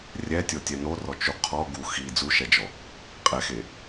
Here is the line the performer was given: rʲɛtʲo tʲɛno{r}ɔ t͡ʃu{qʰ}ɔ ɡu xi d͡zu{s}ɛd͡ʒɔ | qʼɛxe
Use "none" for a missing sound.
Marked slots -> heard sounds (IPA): r, qʰ, ʃ

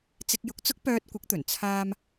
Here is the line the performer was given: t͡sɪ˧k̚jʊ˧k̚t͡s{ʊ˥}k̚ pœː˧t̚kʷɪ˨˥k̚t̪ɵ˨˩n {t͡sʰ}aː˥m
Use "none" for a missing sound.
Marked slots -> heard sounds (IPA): ʊ˥, t͡sʰ

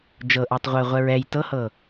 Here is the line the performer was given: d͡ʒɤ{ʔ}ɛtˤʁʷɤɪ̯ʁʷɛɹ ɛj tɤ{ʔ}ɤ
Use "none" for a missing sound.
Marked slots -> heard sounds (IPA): ʔ, h

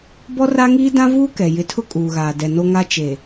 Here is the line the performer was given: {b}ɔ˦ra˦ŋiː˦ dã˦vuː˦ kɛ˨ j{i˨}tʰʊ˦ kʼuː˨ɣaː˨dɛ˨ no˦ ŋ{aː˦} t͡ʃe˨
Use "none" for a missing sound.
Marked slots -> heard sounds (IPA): b, ɪ˨, a˦

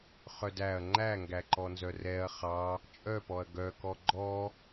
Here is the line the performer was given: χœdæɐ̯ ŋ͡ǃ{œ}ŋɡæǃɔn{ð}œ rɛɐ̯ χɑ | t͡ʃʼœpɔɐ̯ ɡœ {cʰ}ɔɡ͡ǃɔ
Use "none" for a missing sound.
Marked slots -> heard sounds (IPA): æ, z, k

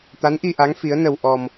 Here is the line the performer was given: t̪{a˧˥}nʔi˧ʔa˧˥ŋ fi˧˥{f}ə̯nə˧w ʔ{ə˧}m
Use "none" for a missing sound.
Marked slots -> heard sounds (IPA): a˧˥, none, ɔ˧

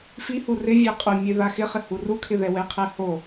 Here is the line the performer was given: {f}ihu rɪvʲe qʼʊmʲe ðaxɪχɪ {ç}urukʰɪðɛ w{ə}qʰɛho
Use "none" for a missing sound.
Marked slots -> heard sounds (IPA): f, h, ɛ

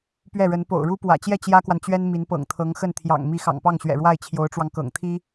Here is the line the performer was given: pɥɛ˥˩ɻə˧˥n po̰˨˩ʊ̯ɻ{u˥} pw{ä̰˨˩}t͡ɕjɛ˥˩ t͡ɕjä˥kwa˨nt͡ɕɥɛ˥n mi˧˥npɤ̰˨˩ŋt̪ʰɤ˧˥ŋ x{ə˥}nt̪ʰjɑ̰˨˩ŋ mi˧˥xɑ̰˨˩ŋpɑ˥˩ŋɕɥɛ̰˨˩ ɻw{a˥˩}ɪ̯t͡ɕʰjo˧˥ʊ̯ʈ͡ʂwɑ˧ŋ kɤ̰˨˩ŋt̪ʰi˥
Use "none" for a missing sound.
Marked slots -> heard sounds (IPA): u˥, ä̰˨˩, ə˥˩, a˥˩

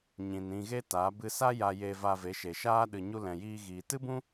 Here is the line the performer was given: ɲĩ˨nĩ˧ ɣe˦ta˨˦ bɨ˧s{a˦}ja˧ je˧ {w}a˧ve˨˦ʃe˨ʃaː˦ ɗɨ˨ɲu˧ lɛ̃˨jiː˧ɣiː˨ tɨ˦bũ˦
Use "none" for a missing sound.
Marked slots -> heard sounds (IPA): a˦, v

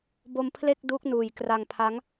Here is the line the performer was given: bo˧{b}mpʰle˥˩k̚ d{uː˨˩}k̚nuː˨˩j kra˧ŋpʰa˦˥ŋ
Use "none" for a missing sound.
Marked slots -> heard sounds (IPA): none, uː˦˥

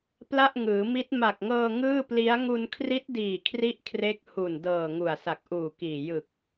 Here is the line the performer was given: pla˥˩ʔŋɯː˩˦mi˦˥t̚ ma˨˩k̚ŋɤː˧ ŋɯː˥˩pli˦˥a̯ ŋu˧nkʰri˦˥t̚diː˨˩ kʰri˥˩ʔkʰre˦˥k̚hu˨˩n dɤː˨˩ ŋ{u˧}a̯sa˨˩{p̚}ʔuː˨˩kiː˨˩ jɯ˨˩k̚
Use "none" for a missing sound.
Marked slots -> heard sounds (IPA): u˨˩, k̚

